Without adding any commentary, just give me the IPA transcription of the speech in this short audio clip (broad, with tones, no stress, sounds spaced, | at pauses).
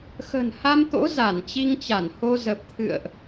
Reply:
x ə̤˨˩ n h a˧ m t̪ o̰˧˥ z a˧˩ n t͡ɕ i˧ ŋ t͡ɕ a˧˩ n h o˧ z ə˨˩ p̚ t̪ʰ ɨ̰˧˨ ə̯ ʔ